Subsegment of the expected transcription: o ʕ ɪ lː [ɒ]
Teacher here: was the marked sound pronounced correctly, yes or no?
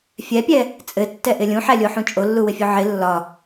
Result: yes